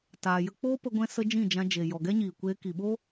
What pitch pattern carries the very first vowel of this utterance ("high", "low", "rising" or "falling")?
low